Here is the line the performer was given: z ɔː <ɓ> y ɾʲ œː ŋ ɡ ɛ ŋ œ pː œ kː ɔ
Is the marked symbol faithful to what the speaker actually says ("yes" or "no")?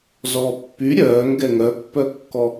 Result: no